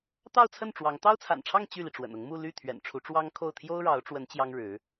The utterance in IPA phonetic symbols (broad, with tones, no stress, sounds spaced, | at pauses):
t̪ ɑ˥˧ ʊ̯ t͡sʰ ə˥˩ n ʈ͡ʂ w ɑ˧˥ ŋ t̪ ɑ˥ ʊ̯ t͡sʰ a̰˨˩ n ʈ͡ʂʰ ɑ˥˧ ŋ t͡ɕ y˥˩ l i˩ ʈ͡ʂ w ə̰˨˩ n ʊ˧˥ ŋ m u˥˧ l y˥˩ t̪ʰ ɥ ɛ̰˨˩ n ʈ͡ʂʰ u˧˥ ʈ͡ʂ w ɑ˥ ŋ kʰ o˥˩ ʊ̯ t̪ʰ j o˥ ʊ̯ ɻ ɑ˧˥ ʊ̯ ʈ͡ʂ w ə˧˥ n t͡ɕ j ɑ˥ ŋ ɻ ɻ̩˧˥